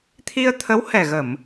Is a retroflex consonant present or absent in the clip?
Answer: absent